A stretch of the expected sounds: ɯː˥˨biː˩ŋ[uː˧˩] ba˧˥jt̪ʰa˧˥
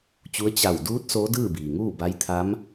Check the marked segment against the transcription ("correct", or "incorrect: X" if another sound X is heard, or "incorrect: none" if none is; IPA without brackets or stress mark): incorrect: uː˥˨